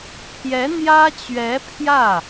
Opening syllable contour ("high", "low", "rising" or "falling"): rising